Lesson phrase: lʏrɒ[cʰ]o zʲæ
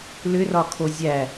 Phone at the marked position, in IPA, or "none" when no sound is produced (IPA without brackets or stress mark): kʰ